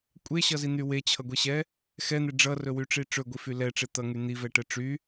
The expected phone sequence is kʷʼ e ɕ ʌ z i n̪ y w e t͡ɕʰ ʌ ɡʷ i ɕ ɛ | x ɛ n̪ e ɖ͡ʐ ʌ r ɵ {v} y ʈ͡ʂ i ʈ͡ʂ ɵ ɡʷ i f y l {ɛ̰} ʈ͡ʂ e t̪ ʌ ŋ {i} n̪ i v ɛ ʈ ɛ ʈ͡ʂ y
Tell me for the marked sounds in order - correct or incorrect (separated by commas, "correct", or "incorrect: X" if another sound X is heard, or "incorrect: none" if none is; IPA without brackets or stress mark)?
incorrect: w, incorrect: ɛ, incorrect: y